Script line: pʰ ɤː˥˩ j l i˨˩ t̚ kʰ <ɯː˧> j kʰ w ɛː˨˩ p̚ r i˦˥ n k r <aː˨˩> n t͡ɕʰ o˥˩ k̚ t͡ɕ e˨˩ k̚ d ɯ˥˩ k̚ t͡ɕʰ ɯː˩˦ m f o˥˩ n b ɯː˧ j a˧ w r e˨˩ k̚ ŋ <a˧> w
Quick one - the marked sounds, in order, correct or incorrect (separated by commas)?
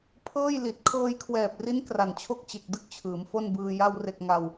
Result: incorrect, incorrect, correct